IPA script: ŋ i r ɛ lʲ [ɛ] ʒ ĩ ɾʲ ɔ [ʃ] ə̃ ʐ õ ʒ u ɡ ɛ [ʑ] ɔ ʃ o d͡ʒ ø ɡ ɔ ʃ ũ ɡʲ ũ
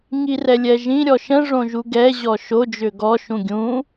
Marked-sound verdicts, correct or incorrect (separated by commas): correct, correct, correct